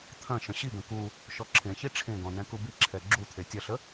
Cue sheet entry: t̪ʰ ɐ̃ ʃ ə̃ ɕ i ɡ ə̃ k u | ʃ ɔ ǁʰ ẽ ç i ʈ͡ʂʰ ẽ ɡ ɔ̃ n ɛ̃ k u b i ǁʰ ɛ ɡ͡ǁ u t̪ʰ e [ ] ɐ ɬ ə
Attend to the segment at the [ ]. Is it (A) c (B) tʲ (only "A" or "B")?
B